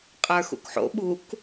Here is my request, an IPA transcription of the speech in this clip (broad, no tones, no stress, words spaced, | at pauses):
qʼə˞xṵkħo̰ ɓuk